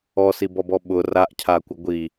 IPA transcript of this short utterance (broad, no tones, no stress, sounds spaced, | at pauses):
ɔ s i b ɔ b ɔ ɓ ʊ r a ʔ cʰ a kʷ ɪ ɡʷ i